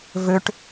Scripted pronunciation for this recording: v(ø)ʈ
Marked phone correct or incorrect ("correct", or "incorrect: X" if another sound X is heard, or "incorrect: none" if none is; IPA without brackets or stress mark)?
correct